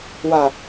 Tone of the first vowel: low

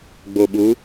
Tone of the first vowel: low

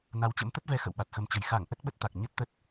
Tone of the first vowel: rising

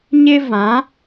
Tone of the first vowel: high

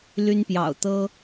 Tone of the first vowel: high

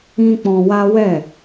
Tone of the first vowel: high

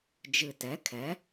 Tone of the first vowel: low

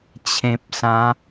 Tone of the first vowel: low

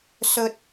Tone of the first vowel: high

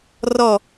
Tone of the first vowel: falling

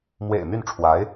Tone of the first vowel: low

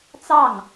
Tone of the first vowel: falling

